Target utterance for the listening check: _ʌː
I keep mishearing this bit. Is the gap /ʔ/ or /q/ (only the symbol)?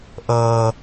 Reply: ʔ